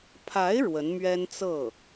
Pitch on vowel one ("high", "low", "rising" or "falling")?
rising